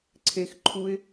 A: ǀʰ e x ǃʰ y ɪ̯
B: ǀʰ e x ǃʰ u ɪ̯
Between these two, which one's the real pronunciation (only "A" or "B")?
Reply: B